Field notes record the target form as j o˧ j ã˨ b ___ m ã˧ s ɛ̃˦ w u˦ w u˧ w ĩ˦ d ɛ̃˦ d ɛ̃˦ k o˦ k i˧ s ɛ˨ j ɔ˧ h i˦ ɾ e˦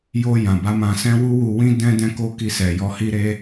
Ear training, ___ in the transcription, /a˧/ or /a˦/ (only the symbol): a˧